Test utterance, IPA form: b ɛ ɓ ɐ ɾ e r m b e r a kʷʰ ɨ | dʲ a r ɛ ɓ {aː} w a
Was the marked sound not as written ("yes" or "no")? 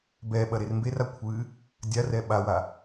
yes